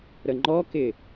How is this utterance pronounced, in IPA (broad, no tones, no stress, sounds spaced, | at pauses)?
ɾ ə ŋ͡ǃ ɔ k ɪ